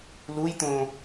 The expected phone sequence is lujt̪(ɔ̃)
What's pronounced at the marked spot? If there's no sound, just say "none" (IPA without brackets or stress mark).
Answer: õ